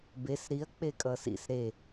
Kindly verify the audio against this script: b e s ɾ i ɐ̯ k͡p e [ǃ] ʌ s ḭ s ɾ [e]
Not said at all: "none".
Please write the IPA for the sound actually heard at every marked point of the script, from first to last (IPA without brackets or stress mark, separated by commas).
kʼ, e